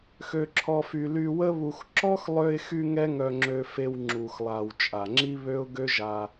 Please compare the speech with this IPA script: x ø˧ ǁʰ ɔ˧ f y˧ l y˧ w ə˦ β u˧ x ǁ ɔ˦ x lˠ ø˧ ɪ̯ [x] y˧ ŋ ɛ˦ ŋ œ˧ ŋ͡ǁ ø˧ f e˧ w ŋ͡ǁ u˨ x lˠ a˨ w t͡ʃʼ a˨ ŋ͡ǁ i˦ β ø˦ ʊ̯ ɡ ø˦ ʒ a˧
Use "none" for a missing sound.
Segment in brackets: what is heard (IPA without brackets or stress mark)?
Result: x